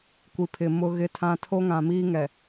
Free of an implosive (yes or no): yes